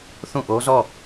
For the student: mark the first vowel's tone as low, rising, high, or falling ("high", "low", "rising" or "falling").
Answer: falling